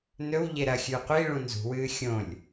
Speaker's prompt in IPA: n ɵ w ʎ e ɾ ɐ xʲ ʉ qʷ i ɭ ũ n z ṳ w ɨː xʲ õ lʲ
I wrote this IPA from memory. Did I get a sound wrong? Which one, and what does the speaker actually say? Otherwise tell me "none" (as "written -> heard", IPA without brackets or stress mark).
none